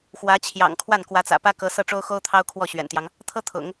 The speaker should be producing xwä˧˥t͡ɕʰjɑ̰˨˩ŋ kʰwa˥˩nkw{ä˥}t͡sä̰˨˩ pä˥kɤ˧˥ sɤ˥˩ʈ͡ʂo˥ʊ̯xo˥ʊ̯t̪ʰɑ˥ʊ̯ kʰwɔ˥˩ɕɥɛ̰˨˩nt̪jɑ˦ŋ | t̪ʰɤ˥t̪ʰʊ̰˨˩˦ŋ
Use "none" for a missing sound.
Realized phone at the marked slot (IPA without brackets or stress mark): ä˧˥